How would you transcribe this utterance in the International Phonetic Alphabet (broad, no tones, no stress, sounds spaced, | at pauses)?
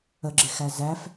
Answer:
ə ɡ͡ǁ ɪ x æ z æ f